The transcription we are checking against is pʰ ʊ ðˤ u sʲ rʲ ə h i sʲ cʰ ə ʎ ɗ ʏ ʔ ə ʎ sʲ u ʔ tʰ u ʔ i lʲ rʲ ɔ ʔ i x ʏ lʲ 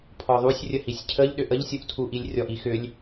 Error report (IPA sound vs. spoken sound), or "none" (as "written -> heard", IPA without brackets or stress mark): ʊ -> ɔ